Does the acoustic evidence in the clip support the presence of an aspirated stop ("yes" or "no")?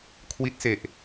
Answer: yes